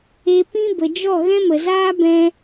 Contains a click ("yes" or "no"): no